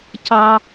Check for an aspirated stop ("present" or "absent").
absent